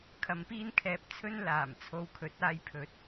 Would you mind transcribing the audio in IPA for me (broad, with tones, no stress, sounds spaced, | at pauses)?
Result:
kʰ ɐ˨˧ m p iː˥ n kʰ ɛː˧ p̚ t͡sʰ ɵ˥ n l aː˨˩ m t͡sʰ o˧ w kʰ ɵ˨˥ t̚ aː˨˧ j pʰ ɵ˨˥ t̚